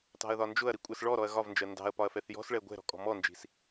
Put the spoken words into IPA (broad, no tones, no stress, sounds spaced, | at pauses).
t ɑ̤ ɐ̯ ð ɒ n d͡ʒ ʊ ɐ̯ ɾ i kʷʼ ɛ s ɭ ɔ ɾ ɔ ɐ̯ ɣ ɒ v n d͡ʒ ɜ n d ɑ̤ ɐ̯ p ɒ ɐ̯ f ɛ θ j ɔ̤ s ɭ ɛ ɡʷ ɛ̤ ɾ ɔ̤ kʼ ɔ̤ m ɔ n d͡ʒ i̤ s